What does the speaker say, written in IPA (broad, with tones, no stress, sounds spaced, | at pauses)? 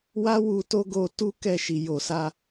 w a˦ w u˧ t o˦ ɡ o˧ t u˦ k ɛ˧ ʃ i˨ j o˨ s a˧